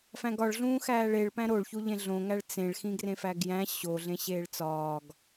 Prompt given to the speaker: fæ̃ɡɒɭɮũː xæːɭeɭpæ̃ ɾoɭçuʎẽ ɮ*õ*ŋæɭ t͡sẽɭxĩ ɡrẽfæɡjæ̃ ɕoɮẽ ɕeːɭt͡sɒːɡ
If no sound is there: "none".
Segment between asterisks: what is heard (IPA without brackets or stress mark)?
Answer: õ